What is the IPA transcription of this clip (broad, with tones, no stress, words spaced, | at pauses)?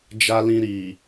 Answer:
d͡ʒa˧lĩ˧ɾi˨